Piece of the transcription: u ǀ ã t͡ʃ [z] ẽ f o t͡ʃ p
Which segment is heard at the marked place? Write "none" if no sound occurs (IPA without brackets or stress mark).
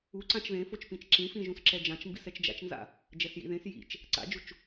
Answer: ð